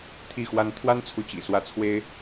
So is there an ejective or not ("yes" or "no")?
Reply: no